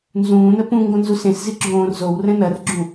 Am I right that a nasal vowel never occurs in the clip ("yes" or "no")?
no